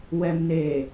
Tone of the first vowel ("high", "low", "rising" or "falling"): low